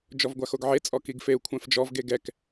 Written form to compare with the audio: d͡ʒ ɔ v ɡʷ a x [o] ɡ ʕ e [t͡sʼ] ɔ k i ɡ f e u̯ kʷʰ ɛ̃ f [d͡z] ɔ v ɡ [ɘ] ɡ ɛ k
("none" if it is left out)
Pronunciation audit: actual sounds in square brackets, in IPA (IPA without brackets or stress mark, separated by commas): o, t͡sʼ, d͡ʒ, e